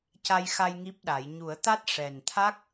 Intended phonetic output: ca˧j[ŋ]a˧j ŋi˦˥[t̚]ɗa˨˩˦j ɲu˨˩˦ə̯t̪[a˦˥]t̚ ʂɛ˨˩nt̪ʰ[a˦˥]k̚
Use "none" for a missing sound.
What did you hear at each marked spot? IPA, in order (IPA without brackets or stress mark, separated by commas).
x, p̚, a˦˥, a˦˥